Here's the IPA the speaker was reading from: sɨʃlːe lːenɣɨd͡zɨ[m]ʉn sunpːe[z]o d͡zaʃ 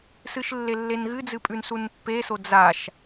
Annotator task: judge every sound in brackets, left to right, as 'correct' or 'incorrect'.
incorrect, incorrect

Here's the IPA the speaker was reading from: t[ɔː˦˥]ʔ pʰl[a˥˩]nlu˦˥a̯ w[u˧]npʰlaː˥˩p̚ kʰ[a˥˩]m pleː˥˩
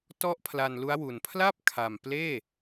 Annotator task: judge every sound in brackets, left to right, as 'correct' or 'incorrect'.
incorrect, incorrect, incorrect, incorrect

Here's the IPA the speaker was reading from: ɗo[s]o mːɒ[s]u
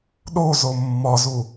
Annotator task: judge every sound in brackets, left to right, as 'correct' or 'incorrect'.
incorrect, incorrect

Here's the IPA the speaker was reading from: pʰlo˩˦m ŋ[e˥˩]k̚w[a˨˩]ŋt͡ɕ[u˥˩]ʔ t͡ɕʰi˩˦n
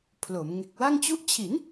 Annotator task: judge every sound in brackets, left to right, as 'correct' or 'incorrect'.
incorrect, incorrect, correct

